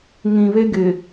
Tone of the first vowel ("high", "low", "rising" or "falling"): low